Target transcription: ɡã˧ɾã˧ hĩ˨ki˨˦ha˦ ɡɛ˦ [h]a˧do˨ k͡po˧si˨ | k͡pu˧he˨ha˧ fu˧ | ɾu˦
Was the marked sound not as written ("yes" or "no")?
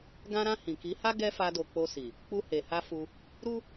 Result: yes